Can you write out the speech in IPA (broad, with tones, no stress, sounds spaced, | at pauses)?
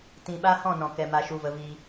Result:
t ĩ˧ ɓ a˦ h ɔ̃˦˨ n ɔ̃˨ k ɛ˨ m a˨ ʃ u˨ v ə˨ v i˧